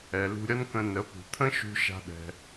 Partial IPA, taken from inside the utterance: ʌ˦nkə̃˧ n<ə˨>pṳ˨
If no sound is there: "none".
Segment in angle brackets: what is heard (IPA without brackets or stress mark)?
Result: ə˨˦